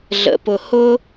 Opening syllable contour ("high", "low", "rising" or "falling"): low